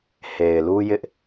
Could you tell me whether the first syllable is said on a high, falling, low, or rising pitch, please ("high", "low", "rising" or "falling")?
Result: low